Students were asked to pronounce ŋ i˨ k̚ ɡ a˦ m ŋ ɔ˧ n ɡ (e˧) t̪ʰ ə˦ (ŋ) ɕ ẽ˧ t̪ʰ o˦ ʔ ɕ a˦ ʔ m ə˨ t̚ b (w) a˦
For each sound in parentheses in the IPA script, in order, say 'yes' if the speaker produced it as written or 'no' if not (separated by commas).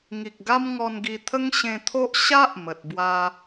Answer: no, yes, yes